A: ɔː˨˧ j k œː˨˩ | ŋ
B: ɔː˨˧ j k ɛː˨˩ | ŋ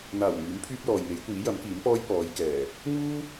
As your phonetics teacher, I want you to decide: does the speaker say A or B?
B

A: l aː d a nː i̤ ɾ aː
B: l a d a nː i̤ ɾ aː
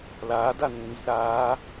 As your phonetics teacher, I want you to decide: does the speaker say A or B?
A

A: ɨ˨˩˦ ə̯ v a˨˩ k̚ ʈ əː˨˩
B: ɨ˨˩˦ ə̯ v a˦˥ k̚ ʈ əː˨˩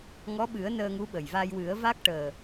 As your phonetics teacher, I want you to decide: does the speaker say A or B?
B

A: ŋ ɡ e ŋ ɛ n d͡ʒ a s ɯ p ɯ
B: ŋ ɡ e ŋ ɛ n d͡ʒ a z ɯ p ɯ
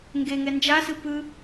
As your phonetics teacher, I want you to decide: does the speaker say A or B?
A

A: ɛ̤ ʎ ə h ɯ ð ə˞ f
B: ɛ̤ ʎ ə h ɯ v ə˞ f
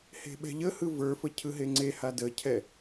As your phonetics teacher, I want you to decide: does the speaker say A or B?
B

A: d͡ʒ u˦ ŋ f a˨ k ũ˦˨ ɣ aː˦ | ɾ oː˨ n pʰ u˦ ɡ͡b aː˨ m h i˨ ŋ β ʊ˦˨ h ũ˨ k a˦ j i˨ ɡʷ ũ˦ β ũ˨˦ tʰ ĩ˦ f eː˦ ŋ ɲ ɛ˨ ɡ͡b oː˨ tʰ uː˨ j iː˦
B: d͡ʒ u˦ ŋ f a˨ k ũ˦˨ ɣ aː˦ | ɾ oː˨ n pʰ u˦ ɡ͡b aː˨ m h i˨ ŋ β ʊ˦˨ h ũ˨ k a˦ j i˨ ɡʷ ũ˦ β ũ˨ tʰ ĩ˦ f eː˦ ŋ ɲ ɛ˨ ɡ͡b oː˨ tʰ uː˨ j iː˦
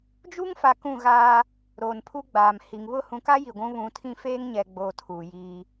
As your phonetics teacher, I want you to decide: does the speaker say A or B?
A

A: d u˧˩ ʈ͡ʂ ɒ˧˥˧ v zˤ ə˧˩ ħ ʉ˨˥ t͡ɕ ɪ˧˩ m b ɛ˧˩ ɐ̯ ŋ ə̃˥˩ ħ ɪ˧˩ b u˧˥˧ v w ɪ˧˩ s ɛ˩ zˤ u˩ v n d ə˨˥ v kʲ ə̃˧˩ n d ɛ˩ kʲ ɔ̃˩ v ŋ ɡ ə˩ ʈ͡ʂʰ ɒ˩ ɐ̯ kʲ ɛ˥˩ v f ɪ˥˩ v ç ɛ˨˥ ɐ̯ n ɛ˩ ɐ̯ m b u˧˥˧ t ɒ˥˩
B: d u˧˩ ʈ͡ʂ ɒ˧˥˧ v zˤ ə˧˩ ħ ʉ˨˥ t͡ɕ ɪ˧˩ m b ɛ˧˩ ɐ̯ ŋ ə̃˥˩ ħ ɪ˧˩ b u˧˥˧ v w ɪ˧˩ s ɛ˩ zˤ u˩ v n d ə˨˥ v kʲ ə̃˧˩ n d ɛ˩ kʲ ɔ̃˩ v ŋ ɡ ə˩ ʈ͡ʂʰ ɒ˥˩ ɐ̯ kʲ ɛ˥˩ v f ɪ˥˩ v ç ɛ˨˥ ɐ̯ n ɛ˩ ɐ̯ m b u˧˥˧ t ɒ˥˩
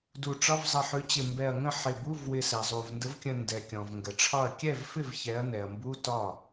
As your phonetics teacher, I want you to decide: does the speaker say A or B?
B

